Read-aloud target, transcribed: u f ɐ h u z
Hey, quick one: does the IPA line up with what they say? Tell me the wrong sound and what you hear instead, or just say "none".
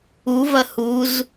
f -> v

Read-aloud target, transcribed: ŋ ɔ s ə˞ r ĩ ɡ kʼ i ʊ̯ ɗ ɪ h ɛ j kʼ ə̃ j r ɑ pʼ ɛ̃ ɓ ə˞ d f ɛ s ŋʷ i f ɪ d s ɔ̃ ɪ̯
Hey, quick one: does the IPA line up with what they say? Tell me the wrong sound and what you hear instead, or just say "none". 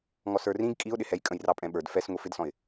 none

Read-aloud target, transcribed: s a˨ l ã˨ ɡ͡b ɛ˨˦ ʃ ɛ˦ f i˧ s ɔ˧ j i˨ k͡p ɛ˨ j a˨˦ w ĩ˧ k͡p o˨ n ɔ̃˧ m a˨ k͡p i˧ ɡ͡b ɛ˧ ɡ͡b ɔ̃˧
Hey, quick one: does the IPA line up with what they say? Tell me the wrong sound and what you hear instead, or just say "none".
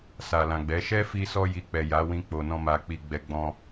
none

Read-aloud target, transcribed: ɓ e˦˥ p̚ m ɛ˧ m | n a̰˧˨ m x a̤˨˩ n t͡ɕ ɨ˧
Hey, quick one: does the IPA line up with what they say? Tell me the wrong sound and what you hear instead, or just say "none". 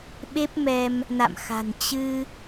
none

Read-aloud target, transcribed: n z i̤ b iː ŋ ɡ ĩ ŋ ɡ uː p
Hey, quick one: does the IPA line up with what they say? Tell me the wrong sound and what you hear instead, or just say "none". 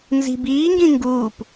none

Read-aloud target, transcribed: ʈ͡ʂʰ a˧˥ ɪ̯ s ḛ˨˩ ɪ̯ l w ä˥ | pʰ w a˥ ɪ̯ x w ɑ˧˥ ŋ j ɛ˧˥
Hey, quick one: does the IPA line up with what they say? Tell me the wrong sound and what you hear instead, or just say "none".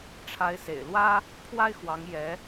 none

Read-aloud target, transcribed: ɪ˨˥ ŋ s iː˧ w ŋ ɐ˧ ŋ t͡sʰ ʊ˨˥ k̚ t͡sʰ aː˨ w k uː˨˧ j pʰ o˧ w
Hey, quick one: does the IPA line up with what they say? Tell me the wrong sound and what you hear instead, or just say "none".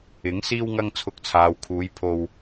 k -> kʰ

